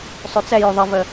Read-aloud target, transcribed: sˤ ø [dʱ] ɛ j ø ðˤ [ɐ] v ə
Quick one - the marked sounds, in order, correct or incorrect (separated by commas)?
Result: incorrect, incorrect